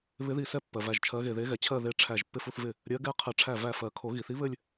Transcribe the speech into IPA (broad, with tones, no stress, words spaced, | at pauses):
βɪ˧˥ði˧˩ sɛ˥˧pːɜ˩ væ˧˩ʒt͡ʃʰɜ˧˥ɣe˧˩ ðe˧˥ɣɛ˩ t͡ɕʰɜ˥˧ðe˧˥ ʈ͡ʂʰæ˧˩ʒ pːɪ˥˧fu˥˧θvɪ˥˩ | ɾʲɜ˧˥ɡɛ˥˧qʰɘ˧˩ ʈ͡ʂʰæ˥˩væ˥˩fɜ˨˩˦ kʰo˨˩˦ ɣi˩θi˧˥βɘ˥˧lʲ